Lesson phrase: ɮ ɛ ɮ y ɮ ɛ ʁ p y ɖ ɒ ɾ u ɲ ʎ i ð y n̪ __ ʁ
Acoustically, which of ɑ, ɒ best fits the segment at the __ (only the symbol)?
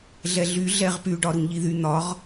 ɒ